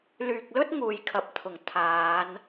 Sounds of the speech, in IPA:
l yː˨ k̚ l ɵ˥ t̚ ŋ uː˨ j kʰ ɐ˨ p̚ t̪ʰ ʊ˨˩ ŋ t̪ʰ aː˨˧ n

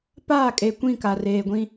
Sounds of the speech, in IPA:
p aː˦˨ kʼ e˨ kʷ ĩ˦˨ k a˨ r eː˨ ɡʷ ĩ˦

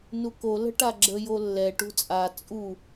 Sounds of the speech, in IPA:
n u k o l ə̤ ʈ a ɡ͡ǁ ə j o lː ɛ ʈ ṳ t͡sʼ a t͡sʼ u

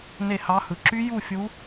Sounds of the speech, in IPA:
n e˥˧ h ɑ˦˥ h ɯ˨˥ ǁ y˦˥ j u˥˧ fʲ u˦˥

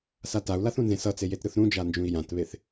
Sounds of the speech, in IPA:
s a t a u̯ l a θ ũ n z ẽ s ʌ t͡s e j e t ɾ ɯ θ ɾ ũ d͡ʒ a n d͡ʒ ũ i̯ j ã t β e θ

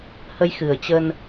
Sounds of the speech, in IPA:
h ə˧ j x ɨ˨˩ ə̯ t͡ɕ ə˧ n

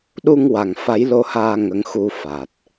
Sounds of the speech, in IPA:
ɗ u˧ ŋ w a˨˩ ŋ f a˧˥ j l o˧ h aː˧ ŋ ə˧˥ ŋ x u˧ f a˨˩ t̚

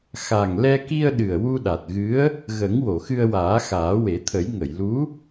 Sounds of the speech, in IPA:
x a˨˩ ŋ l ɛ˧ k i˧ ə̯ ɗ ɨ˨˩ ə̯ w u˧ ɗ a˨˩ t̚ ɣ ɨ˧˥ ə̯ | ɣ ə˨˩˦ ŋ w o˨˩˨ x ɨ˧ ə̯ w aː˨˩˦ x aː˨˩˦ w e˨˩˦ t̪ʰ ə˨˩˦ j ŋ ə˨˩˨ j l u˧˥

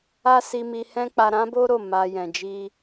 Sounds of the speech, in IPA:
a˦ s i˧ m i˧ h ɛ̃˦ k͡p a˧ ɾ ã˦ b o˦ ɾ o˦˨ m a˧ j ɛ̃˨ d͡ʒ i˧

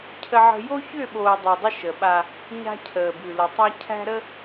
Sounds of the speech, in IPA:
cʰ ə˦ ʕ ə̤˦ j o˦ ç ʏː˦˨ ɓ oː˨ dˤ ʉ˨ dˤ ə˦ ʃ ə˨ ɓ a˦ | ɲ a̤˦ cʰ əː˨ b ʉ˨ l ə˨ tˤ æ˦ cʰ æ̤˦ ɾ ə˦

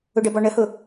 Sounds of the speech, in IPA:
ʊ ɖ ə b ɔ ɳ ə h ʊ

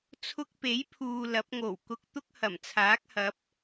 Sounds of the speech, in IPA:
t͡sʰ ʊ˧ k̚ p e˨˥ j pʰ uː˨ l ɐ˨˥ p̚ ŋ o˨˩ w k ʊ˧ k̚ t̪ ʊ˥ k̚ h ɐ˨˩ m t͡sʰ aː˨˥ k̚ h ɐ˨˥ p̚

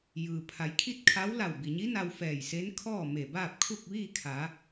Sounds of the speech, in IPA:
j ɯː˩ pʰ a˩˧ j kʰ i˥˨ t̚ kʰ a˧˥ w l a˧˩ w b i˩ ɲ i˧˥ n a˧ w f ɛː˧˩ j s e˧˥ n kʰ ɔː˥˨ m e˧˩ b aː˥˨ p̚ kʰ u˥˨ k̚ ʋ iː˥˨ kʰ a˩˧

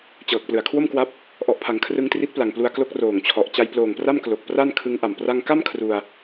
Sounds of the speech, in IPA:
t͡ɕ ɤː˨˩ k̚ p l ɯ˨˩ a̯ kʰ w o˥˩ m k w a˦˥ p̚ | ʔ ɔ˨˩ ʔ pʰ a˩˦ ŋ kʰ r ɯ˧ ŋ t r i˦˥ t̚ p l a˨˩ ŋ p l u˧ a̯ k l o˦˥ k̚ r oː˨˩ ŋ t͡ɕʰ ɔ˨˩ ʔ t͡ɕ a˧ j p l oː˨˩ ŋ p r a˥˩ m k l o˨˩ k̚ p r a˥˩ n kʰ ɯ˦˥ ŋ ʔ a˨˩ m p r a˧ ŋ k a˥˩ m kʰ r u˧ a̯

